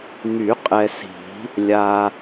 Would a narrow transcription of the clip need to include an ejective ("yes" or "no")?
yes